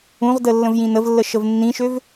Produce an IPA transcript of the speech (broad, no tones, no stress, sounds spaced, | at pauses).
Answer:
ũ ʁ d ə lː ə̃ v j ĩ n ə v lː ə ʃ ə v nː ĩ ʃ ø v